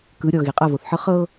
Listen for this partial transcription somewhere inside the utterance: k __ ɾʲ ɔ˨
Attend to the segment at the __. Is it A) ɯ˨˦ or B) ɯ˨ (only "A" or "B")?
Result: A